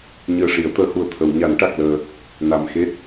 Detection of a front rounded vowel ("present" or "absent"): absent